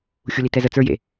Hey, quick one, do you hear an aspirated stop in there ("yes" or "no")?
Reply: no